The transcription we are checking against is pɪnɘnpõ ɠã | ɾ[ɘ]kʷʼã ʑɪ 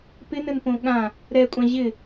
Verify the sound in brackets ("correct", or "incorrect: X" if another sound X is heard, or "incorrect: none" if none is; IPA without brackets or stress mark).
incorrect: ɛ